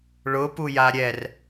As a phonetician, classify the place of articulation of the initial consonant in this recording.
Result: retroflex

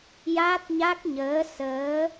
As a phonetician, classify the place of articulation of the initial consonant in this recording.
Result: palatal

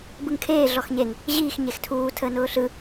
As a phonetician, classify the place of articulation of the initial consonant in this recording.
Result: labial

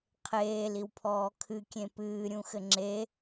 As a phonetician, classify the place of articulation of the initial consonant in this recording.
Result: uvular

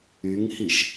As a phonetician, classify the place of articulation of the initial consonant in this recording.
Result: velar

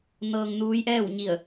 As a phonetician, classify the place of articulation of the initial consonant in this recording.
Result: alveolar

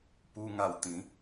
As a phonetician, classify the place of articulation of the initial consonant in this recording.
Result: labial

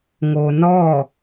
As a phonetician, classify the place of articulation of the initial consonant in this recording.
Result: velar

